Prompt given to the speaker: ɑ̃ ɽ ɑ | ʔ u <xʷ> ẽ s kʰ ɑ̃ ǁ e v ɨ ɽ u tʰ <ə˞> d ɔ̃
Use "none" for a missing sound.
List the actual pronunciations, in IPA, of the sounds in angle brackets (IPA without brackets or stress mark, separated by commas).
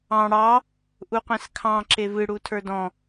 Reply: qʷ, ə˞